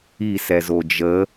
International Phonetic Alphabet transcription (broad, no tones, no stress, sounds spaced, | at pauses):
i s ɛ z o d͡ʒ ə